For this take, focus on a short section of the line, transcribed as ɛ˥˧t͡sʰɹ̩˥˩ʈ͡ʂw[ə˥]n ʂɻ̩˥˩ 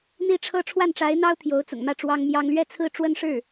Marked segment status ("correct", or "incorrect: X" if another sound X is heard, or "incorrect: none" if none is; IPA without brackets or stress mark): correct